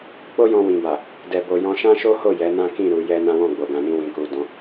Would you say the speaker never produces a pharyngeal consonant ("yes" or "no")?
yes